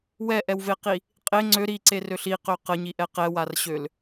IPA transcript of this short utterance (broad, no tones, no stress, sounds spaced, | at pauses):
w ɛ ʔ ɛ w v e q i | qʼ e ŋ͡ǀ ø ɾ i ǀ e r ø ɬ i q ø q ə ɲ i ʔ ɛ q ɛ w a r ɕ ø l